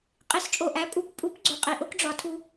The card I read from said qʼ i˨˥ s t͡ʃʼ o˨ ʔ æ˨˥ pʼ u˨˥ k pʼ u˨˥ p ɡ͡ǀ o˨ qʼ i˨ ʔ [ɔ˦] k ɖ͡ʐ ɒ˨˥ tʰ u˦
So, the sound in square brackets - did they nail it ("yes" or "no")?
no